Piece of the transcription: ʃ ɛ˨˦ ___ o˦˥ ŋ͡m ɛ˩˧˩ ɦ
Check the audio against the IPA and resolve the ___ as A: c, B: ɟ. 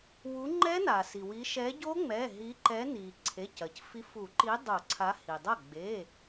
B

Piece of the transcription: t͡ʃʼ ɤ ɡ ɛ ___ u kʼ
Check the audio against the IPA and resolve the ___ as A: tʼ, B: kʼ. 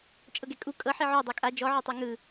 B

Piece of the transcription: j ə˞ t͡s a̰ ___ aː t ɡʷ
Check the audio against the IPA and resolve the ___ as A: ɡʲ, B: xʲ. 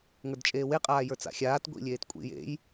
B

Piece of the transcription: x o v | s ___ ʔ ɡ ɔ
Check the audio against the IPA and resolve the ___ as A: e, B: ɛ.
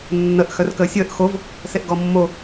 A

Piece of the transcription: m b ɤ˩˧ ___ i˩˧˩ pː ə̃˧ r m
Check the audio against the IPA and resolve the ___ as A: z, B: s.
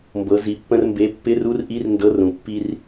A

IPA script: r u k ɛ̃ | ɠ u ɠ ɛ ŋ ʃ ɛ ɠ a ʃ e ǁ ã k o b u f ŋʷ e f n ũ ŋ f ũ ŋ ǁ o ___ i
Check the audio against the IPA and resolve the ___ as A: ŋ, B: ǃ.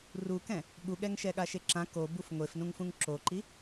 B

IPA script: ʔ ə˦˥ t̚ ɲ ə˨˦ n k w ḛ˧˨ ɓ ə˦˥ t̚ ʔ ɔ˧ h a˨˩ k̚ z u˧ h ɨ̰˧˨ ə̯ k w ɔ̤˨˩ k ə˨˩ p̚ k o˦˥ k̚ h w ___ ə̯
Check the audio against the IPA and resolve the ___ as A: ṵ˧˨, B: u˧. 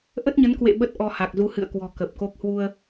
B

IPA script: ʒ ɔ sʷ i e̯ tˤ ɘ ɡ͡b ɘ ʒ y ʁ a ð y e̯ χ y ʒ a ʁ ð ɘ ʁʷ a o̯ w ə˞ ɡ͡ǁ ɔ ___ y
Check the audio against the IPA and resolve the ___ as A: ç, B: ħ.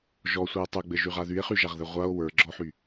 B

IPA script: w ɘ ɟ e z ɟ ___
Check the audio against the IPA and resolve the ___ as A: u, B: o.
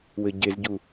A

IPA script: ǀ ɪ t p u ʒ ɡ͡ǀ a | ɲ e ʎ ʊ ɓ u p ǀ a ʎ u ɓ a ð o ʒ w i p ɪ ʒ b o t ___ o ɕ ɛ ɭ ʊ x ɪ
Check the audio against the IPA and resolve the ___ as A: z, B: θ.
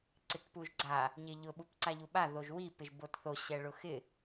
B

